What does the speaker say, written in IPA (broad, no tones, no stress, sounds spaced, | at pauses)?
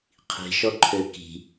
qʰ i̤ ʃ ɔ ǃʰ ø k i̤